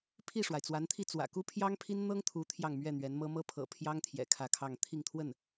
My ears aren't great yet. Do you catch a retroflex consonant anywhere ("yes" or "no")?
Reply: yes